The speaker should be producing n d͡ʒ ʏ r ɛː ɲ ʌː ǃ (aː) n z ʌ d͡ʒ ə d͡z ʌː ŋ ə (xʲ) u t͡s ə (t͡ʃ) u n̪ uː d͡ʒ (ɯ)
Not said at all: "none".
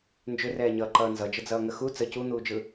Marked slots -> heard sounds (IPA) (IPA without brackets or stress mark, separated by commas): ʌː, x, c, ɯ